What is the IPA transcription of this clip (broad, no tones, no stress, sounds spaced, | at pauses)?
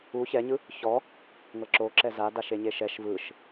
u ç ɛ ɲ ɯ | ç ɔ | ŋ ɤ ǁ o ǁ ɛ z a d a ʃ e ɲ e ʃ ɛ ʃ v ɯ ʃ